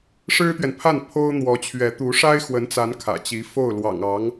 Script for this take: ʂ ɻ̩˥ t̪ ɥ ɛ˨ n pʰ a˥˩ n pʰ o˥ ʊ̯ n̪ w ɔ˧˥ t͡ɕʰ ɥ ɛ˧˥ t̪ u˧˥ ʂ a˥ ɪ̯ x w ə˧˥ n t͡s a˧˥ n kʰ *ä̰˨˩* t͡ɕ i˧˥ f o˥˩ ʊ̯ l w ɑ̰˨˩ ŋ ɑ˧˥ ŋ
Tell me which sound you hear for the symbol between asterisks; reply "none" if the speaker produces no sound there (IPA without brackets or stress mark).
ä̰˨˩